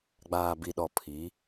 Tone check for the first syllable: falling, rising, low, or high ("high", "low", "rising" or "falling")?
low